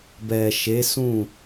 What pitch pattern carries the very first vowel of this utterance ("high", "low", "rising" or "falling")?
low